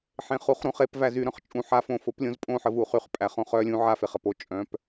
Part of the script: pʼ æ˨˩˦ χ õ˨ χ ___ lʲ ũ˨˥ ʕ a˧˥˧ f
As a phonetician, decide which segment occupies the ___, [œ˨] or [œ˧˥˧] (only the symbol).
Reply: œ˧˥˧